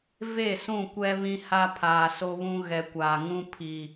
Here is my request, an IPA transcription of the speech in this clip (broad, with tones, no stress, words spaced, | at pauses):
ve˦˨sũ˦˨kʷɛ˦ βĩ˦ha˦pʰaː˨ so˦βũ˦ ɣɛ˨ kʷaː˨ŋũ˦ pʰi˨